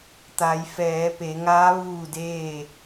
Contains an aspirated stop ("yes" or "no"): no